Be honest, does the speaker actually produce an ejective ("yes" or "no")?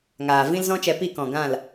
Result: no